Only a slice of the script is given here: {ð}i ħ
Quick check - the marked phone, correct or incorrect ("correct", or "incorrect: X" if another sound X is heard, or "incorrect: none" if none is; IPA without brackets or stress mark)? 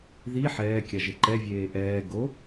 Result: correct